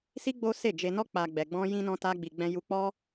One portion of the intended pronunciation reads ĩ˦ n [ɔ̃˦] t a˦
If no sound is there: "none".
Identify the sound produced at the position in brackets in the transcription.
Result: ɔ̃˦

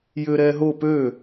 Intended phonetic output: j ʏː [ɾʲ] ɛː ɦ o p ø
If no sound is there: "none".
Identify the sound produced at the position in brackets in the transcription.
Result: ɾ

